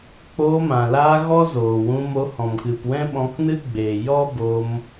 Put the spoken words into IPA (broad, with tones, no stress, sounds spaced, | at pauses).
k͡p oː˧ m ã˨ l aː˧ ɣ ɔ˦ z oː˨ w ũ˧ m o˧ h ɔ̃˨ m k ɨ˨ p w ɛ̃˦ ɓ ɔ̃˧ k n ɨ˦ ɡ͡b eː˨ j ɔ˦ b o˧ m